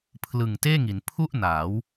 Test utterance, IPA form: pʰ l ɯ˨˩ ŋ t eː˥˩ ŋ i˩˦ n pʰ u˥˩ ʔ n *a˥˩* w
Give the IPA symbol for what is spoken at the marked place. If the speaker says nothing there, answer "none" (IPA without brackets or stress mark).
a˩˦